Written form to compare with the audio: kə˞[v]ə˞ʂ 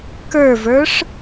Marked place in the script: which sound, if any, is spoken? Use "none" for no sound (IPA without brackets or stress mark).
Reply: v